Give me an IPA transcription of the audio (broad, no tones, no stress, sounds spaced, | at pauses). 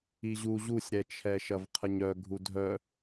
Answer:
i ʑ u ʑ u sʲ ɾ ɛ t͡ʃʰ ɛ ʃ ɐ v qʰ ə ɲ œ ɡʱ u dʱ œ